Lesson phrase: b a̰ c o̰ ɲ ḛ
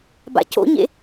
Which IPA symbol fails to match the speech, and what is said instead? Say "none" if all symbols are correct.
none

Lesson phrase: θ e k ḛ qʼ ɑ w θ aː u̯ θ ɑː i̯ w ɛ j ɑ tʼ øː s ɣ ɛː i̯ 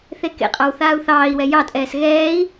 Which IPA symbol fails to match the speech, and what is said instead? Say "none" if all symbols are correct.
øː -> ɛː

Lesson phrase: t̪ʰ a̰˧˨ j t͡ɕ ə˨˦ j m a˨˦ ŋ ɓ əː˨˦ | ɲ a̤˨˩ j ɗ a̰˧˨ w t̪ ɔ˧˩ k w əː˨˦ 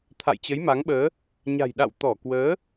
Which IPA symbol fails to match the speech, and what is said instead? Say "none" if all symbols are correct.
none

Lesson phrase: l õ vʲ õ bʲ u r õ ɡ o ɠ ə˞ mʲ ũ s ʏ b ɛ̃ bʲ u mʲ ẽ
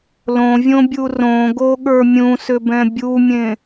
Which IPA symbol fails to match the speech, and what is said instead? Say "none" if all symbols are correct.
none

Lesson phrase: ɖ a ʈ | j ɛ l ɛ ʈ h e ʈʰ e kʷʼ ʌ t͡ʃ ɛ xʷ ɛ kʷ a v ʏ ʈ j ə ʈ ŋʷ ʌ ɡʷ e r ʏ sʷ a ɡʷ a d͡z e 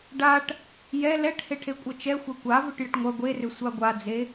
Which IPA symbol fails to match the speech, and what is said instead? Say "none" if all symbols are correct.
none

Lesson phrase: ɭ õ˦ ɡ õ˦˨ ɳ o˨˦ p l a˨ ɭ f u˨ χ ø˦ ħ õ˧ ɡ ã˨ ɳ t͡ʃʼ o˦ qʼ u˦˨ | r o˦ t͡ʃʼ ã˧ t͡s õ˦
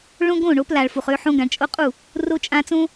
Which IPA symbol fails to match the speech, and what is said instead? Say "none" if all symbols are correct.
none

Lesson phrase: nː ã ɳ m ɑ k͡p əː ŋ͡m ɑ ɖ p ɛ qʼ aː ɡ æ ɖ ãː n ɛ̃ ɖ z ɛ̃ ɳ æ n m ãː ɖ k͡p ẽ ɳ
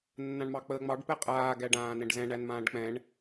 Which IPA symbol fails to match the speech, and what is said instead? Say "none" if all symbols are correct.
ẽ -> ɛ̃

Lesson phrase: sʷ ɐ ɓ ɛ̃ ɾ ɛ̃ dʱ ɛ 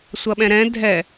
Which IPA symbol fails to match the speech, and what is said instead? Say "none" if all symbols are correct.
none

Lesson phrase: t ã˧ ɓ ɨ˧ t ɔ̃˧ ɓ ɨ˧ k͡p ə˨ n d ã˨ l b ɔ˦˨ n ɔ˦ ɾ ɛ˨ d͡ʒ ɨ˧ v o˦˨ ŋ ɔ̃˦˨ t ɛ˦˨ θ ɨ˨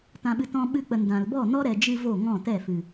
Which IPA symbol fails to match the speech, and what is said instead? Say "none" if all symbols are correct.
θ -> f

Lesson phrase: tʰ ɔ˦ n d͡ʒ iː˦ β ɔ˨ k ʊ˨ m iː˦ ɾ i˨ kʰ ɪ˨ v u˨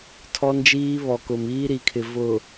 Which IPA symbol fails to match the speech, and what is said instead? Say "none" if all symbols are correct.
u˨ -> ʊ˨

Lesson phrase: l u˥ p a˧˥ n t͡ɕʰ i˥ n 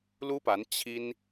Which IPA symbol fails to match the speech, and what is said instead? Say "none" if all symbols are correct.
none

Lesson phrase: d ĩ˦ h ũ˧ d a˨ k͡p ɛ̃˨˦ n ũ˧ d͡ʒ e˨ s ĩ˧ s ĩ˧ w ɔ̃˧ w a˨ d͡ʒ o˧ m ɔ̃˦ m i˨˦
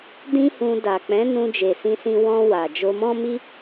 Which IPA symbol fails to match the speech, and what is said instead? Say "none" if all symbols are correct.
i˨˦ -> i˦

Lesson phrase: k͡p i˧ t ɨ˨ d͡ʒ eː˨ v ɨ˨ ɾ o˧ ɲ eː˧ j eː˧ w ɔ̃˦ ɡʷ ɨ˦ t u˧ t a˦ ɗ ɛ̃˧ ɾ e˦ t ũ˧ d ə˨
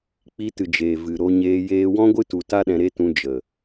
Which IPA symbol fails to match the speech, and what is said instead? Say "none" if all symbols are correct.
d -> d͡ʒ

